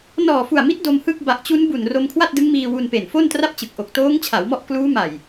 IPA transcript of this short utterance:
n ɔː˨˩ f u˨˩ a̯ m i˦˥ t̚ d o˧ m h ɯ˥˩ k̚ b a˨˩ ʔ t͡ɕ u˦˥ n b u˨˩ n r o˧ m kʰ w a˥˩ t̚ d ɯ˦˥ ŋ m iː˧ w u˧ n p e˨˩ n f o˥˩ n t r a˥˩ p̚ t͡ɕ ɯ˨˩ k̚ ʔ o˨˩ k̚ t oː˦˥ ŋ t͡ɕʰ a˩˦ w m ɔ˦˥ ʔ k l uː˦˥ m a˨˩ j

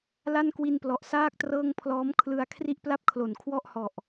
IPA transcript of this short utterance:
l a˥˩ n k w i˧ n p l ɔ˨˩ ʔ s aː˥˩ k̚ t r ɤː˥˩ ŋ pʰ l ɔː˦˥ m kʰ l ɯ˧ a̯ kʰ r i˥˩ ʔ p l a˥˩ p̚ kʰ l o˨˩ n kʰ w ɔ˥˩ ʔ h ɔ˨˩ ʔ

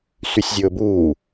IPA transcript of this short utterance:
s y sʲ zʲ ɵː b uː

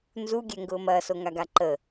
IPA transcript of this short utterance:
n z u ɡʲ ɛ ŋ ɡ ʊː m ɐː s o ŋ a ɡ a ǃ ə

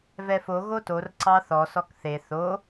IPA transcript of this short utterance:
v ɛ f o ɣ o t o r ǀ ɑ θ ɔ s ɔ k θ e θ o

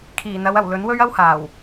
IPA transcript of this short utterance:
kʰ iː˨˩ n̪ ɐ˨˧ w ɐ˨˩ w l ɵ˨˥ n w ɵ˥ ɥ ɐ˥ w h aː˨˩ w

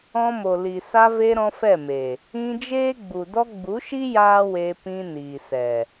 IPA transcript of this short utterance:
ɔ̃˧ m o˨ l i˨ s a˧ v e˧ ɾ ɔ̃˧ f ɛ˦˨ m e˨ | ĩ˧ d͡ʒ eː˦ ɡ͡b u˨ d ɔ˧ ɡ͡b u˨˦ ʃ i˦ j aː˦ w e˧ p ĩ˧ n iː˨ s ɛ˨

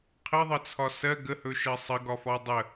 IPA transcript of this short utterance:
qʰ ə ðˤ ə t͡sʰ ɒ s ɜ ɡ ə h ɵ ʃ ɜ sˤ ə ɡ ɒ f ɒ dˤ ə

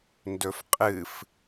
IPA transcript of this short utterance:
n d ɵ f qʼ ɨ f

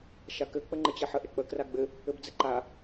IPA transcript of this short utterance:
ʃ a k ɘ k͡p ə ŋ͡ǃ ə t͡ɕ ɛ ħ ə ʔ ɾ ɘ k͡p ə k r a ɡ͡b ɘ | ɘ b d͡z ə ǃ a

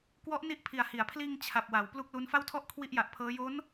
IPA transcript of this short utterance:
k w ɔ˦˥ ʔ n i˦˥ ʔ pʰ i˨˩ a̯ h i˩˦ a̯ pʰ l iː˧ ŋ t͡ɕʰ a˨˩ p̚ w a˩˦ w p l u˥˩ k̚ l u˦˥ n f a˥˩ w tʰ ɔ˥˩ ʔ kʰ w i˥˩ ʔ j a˨˩ ʔ pʰ ɤː˦˥ j o˦˥ n

